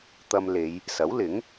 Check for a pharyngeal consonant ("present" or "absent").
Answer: absent